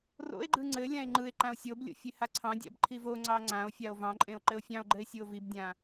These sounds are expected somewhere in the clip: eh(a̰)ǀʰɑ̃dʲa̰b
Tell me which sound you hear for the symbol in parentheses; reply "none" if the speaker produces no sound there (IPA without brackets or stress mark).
a